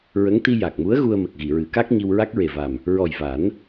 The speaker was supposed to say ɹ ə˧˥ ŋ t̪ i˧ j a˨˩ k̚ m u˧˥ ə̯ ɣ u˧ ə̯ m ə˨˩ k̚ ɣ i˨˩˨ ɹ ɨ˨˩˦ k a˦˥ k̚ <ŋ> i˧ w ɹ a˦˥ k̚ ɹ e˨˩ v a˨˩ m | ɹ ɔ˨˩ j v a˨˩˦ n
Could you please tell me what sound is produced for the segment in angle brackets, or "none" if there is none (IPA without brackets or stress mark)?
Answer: ɲ